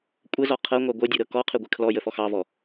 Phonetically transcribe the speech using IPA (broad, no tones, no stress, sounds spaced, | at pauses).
kʷʼ ə z ɔ qʰ ɤ ŋʷ ɑ ɡʷ ɤ dʲ u ɾ ɤ k ɔ qʰ ɨ ɡʷ ɨ kʰ l ɔ j ə f ɔ x ɑ v ɔ